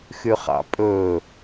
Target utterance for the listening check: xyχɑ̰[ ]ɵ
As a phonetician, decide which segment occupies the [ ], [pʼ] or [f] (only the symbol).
pʼ